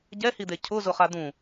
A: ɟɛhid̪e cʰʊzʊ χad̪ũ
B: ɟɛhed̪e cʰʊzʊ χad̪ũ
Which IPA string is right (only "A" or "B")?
A